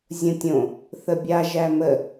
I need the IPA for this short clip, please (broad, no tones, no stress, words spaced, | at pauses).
zʲõtʲõ | θəbʲa ʒæmə